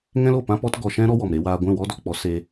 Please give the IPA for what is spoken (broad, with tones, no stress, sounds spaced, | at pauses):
ŋ ɛ̃˦ l o˦˨ p ã˦ p ɔ˦ t ɡ ɔ˧ ʃ ɛ̃˦ ɾ ɔ˦ w ɔ˨ m ɾ e˧ w aː˧ ɡʷ ɛ̃˦˨ w ɔ˦ d ɔ˧ k͡p ɔ˨˦ s e˧